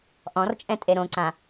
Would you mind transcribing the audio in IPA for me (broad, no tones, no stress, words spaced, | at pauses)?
ʔɔ̃rt͡ʃʼɛ̃ tʼeɾõǀã